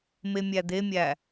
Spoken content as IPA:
m e mʲ æ d̪ e mʲ æ

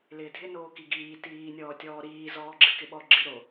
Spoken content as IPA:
l ɪː dʱ ɪ n oː k i ɡ iː t iː nʲ ɔː tʲ ɔː ɾ iː z ɔː ɡ͡ǁ ɨ k ɪ ɓ ɔ ɡ͡ǁ ɨ ɾ o

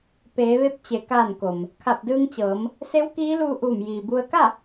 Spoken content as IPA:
p eː˩˧ ʋ e˧ p̚ t͡ɕ e˩˧ k aː˧˩ n k o˩ m | kʰ a˧˩ p̚ d ɯː˧ ŋ t͡ɕ ɤː˩˧ m | s e˧˥ w k iː˧˥ l uː˧ ʔ uː˧˩ m j iː˩ b u˧ ə̯ k a˥˨

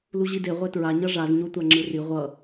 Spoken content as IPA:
l u ʑ i d e ʁʷ ɛ t ɹ a ɲ ʌ ʐ a z ɲ o tʷ a ŋ͡ǁ ɯ r i ʁʷ ʌ

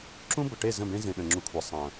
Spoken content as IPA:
ǁ ũ˦ b ə˨ ʈ e˦˨ z ə̃˦˨ b ẽ˦ z ẽ˨ ɗ ə̃˨ ŋ͡ǁ u˨ kʷʰ ɐ˨ sˤ ɐ̃˨

